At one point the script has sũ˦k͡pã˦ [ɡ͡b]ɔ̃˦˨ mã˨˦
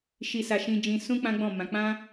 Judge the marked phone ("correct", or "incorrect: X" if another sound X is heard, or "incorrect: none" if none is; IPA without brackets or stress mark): correct